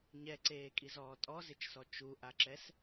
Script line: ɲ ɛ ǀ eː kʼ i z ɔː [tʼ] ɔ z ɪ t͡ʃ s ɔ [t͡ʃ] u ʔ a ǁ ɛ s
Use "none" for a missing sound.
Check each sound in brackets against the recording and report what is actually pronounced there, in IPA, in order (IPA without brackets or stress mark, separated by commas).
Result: tʼ, t͡ʃ